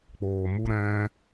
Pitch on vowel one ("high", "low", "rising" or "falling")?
low